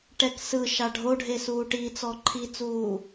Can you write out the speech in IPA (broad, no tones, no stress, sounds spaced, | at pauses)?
ʈ ɛ k s ɯ ʃ a ɖʱ o ɖʱ e s uː ʈ i t͡s ɔ ǃʰ i t͡s uː